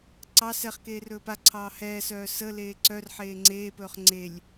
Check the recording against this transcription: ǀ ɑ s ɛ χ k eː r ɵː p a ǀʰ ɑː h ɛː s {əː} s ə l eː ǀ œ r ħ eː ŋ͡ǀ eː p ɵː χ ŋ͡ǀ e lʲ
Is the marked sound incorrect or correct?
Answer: incorrect